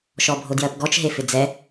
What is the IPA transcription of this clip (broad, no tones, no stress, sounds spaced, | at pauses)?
ʃ ɔ bʱ o d j ɜ p ɡ ɔ t͡ʃ ɦ e f ɪ d͡z ɛ